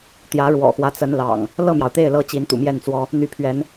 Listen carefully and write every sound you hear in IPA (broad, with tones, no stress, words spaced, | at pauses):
t̪jä˨˦ɻwɔ̰˨˩xwä˦ t͡sə˨˦nlɑ̰˨˩ŋ | lɤ˥˨mjɑ˩ʊ̯t̪e˥˨ɪ̯ lɤ˦ t͡ɕi˨˦nt̪ṵ˨˩mjɛ˥˨nt͡swɔ˦ | n̪y˨˦pʰɥɛ˨˦n